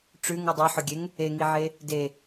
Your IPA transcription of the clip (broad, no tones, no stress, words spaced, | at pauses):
ʈ͡ʂʉŋ ʉdˤɵħɵɡʲeŋ | eŋiʕe | de